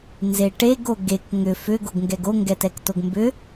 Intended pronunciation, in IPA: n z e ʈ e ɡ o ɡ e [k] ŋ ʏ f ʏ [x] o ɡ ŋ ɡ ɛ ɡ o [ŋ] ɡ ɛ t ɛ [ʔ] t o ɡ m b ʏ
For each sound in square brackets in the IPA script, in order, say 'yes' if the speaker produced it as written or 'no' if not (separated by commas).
yes, no, yes, no